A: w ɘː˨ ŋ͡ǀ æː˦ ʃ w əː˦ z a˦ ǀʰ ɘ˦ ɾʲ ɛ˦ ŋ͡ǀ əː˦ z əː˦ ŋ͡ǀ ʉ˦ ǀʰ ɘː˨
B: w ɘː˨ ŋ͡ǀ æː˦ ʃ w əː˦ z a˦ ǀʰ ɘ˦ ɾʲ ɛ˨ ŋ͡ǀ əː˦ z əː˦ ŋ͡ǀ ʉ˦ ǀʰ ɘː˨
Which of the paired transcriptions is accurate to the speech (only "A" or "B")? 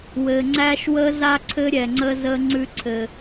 B